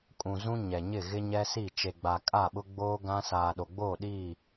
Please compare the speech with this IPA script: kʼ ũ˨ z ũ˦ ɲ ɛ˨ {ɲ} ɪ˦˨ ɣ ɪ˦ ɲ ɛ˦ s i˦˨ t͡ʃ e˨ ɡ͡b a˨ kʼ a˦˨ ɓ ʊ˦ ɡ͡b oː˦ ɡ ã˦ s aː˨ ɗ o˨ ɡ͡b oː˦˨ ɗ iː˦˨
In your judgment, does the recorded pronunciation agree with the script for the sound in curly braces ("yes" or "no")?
yes